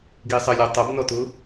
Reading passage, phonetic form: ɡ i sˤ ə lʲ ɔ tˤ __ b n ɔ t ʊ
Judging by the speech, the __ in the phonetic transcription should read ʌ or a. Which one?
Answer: ʌ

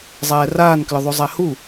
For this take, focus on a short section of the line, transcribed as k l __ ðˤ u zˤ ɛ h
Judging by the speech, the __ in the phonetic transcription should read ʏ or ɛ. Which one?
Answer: ʏ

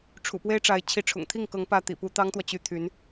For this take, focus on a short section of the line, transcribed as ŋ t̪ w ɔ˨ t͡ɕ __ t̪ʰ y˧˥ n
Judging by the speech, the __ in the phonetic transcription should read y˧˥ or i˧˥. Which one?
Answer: y˧˥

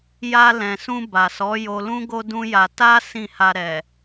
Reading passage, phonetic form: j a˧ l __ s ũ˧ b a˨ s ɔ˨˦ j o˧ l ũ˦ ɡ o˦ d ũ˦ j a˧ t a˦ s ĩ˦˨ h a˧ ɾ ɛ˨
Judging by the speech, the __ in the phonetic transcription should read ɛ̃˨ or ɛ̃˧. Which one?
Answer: ɛ̃˨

